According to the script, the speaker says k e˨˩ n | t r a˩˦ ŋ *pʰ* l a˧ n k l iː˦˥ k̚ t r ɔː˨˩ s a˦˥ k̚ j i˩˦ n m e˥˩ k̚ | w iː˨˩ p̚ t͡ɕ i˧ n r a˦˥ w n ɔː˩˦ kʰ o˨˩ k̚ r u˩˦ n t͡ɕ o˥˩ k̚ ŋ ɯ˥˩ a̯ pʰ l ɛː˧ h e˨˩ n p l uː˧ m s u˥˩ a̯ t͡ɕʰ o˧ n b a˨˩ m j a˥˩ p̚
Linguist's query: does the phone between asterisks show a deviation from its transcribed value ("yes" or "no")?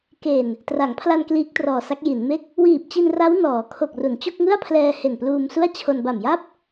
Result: no